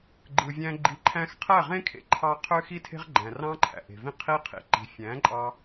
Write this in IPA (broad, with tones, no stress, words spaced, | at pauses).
ɡ͡ǃɯ˨vʲæ̃˧ ɡ͡ǃi˨ǃʰæ̃˧x qʰæ˦˨ʁẽ˦kʰḛ˧ǃʰɑ˧ qʰø˦xi˦tʰe̤˦ʁ ɡ͡ǃæ̃˨rɑ̃˦ǃʰæ̰˨ʔe̤˨ vĩ˦qʰi˦ qʰḭ˨ǃi̤˨ fʲæ̃˨˦ǃʼɑ˧